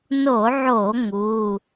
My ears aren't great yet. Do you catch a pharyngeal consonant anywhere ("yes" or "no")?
yes